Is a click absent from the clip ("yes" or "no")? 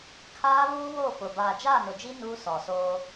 yes